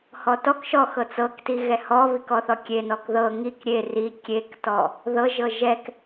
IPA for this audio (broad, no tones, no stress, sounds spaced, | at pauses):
h ɔ t ɔ k ʃ ɔ x ɤ t͡s ɤ k t i ɣ ɛ h ɔ β i k ɔ θ ɔ kʲ e n ɔ k ð ɤ ŋ i k ɾʲ e r i kʲ e k t ɔ | ð ɤ ʒ ɤ ʒ ɛ k